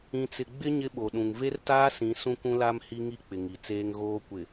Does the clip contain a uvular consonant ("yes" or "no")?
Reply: no